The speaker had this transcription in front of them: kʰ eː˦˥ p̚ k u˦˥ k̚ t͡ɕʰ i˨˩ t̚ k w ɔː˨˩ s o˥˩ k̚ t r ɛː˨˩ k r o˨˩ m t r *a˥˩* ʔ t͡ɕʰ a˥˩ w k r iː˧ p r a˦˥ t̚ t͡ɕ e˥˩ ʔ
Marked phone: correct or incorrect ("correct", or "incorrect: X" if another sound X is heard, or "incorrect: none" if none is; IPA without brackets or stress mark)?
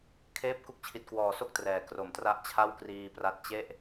correct